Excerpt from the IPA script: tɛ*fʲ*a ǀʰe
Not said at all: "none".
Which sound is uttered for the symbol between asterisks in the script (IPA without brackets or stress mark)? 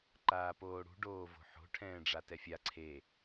fʲ